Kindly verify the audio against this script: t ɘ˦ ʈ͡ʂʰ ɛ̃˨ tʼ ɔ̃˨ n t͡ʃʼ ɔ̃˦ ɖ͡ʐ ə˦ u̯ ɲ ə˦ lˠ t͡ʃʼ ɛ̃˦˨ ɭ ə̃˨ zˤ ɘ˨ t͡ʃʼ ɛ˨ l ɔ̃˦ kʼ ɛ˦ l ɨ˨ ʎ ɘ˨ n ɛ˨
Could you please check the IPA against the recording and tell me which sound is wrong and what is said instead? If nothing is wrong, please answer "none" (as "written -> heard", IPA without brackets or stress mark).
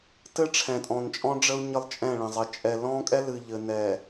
none